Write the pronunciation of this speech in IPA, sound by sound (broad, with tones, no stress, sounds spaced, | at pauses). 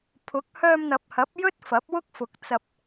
pʰ ʊ˨˥ k̚ h œː˧ m n̪ ɐ˨ p̚ h ɐ˨˥ p̚ j ɵ˥ t̚ f ɐ˨˥ p̚ w ʊ˥ k̚ f ʊ˨˥ k̚ t͡s ɐ˧ p̚